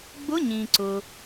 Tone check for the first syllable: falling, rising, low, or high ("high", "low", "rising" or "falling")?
rising